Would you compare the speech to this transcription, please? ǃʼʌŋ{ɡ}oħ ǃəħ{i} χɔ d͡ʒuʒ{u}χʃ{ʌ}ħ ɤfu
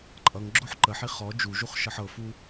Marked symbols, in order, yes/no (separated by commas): no, yes, yes, yes